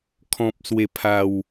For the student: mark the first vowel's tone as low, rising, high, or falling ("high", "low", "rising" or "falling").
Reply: low